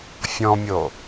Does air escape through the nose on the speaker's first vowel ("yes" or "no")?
yes